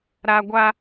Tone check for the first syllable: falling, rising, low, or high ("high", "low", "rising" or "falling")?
high